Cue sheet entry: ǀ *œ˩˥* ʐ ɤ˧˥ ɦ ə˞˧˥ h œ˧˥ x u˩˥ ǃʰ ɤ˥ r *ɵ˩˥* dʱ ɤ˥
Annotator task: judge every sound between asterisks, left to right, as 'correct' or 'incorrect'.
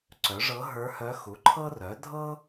correct, incorrect: œ˩˥

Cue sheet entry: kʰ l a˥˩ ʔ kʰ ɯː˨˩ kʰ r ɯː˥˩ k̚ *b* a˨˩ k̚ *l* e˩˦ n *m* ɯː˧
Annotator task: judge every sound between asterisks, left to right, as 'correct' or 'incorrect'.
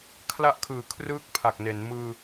incorrect: pʰ, incorrect: n, correct

